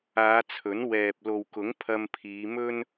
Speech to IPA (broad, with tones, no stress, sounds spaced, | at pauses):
aː˨˧ t͡sʰ ɵ˨˥ n w ɛː˨ p̚ l o˨ w k ʊ˨˥ ŋ pʰ ɐ˧ m pʰ iː˨˧ m ɵ˥ n